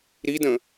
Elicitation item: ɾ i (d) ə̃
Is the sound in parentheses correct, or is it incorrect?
correct